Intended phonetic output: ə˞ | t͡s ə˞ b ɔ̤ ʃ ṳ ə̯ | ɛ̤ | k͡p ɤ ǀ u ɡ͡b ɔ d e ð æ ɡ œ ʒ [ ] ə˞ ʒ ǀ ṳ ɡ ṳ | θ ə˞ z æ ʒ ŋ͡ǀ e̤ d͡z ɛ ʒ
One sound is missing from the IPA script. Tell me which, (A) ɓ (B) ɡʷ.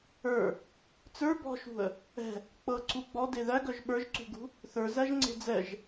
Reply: A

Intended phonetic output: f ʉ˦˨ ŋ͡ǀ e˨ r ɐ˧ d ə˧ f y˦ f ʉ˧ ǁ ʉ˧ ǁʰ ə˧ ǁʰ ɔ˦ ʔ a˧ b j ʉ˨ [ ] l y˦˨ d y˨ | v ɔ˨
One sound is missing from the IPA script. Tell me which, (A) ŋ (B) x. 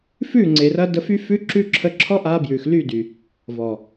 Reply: B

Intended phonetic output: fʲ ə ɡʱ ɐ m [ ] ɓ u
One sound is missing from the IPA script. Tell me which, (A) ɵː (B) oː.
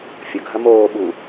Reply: B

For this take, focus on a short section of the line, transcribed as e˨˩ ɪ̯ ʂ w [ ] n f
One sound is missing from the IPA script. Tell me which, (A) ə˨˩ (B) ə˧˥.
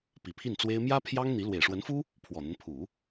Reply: B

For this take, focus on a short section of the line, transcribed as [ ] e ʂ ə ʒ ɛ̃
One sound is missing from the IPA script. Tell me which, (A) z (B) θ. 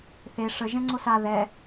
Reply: B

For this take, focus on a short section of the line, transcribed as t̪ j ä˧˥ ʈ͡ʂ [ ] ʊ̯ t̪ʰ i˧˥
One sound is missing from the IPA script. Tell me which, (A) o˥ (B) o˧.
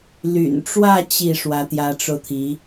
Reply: B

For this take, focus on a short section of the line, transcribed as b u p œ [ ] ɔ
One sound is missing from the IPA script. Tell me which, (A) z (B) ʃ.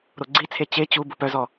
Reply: A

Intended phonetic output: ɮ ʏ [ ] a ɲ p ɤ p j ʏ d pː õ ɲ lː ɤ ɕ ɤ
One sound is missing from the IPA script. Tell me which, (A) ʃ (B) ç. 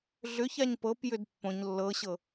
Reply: B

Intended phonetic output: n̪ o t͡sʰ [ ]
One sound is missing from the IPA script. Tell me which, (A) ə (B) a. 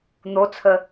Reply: A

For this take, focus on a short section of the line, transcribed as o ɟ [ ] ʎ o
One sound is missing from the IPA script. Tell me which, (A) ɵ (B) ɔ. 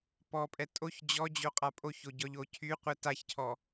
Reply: B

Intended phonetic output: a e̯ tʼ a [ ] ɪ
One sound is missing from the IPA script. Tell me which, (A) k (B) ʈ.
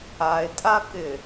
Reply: A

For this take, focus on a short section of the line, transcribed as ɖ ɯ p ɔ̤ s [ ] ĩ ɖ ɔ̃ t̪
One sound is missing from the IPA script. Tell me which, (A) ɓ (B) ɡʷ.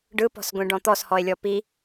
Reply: B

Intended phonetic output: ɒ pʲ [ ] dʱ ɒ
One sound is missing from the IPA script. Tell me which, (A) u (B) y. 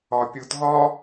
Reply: A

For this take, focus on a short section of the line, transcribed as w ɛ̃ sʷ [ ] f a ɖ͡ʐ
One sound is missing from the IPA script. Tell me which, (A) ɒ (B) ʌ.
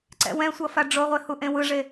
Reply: B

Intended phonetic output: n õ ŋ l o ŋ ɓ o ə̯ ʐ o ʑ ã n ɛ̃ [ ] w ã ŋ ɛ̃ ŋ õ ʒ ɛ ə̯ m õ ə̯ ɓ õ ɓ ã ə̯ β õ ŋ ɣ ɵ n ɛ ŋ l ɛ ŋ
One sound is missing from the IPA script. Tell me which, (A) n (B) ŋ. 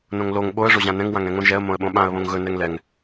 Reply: B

